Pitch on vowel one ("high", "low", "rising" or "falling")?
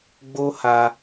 high